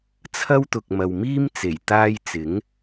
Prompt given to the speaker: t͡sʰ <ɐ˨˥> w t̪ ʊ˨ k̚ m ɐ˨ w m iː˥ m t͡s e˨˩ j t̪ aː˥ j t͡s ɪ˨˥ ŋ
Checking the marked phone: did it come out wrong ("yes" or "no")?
yes